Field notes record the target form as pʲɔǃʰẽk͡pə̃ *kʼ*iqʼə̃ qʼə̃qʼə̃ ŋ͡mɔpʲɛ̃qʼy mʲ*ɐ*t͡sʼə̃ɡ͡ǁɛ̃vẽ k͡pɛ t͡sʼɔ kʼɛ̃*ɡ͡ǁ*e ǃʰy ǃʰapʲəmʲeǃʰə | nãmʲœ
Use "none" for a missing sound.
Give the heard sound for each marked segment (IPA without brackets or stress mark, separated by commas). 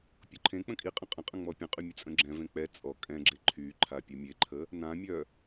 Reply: kʼ, ə, ɡ͡ǁ